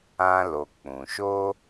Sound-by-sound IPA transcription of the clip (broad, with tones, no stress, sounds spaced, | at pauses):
ã˧ l o˨ k͡p ũ˨ ʃ oː˦